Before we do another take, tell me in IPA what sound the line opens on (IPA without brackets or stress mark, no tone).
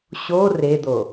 ɕ